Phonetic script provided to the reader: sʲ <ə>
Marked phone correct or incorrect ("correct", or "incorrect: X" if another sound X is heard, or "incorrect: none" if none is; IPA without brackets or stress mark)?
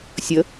correct